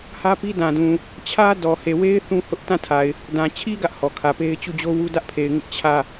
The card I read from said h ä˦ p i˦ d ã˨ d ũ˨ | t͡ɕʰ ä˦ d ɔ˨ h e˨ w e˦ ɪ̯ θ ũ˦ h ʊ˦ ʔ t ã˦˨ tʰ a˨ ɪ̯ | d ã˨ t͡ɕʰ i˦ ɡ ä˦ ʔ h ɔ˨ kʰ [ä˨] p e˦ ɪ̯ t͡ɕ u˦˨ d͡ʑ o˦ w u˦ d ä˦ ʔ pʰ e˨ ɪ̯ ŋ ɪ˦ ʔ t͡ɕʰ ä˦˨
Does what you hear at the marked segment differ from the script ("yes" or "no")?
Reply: no